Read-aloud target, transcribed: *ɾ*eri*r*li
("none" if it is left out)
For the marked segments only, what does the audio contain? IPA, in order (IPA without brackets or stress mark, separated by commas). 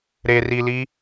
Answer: ɾ, none